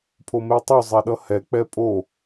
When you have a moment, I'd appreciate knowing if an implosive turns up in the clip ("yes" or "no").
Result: yes